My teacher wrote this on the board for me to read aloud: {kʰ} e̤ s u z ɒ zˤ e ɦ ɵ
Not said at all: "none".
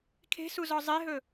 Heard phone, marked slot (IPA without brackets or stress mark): kʰ